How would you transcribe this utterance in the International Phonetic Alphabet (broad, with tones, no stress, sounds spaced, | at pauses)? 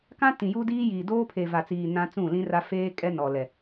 k ã˦ t ĩ˨ j u˦ d iː˦ j iː˨ d oː˦ pʰ e˨ v a˨ t͡s iː˨ n ã˦ t͡s ũ˦˨ l ĩ˦ r a˦ f eː˦ kʼ ɛ˦ n ɔ˨ l ɛ˨